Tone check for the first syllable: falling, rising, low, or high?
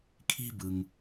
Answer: high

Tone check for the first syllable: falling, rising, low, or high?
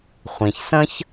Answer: low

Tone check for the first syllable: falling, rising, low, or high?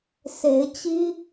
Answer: rising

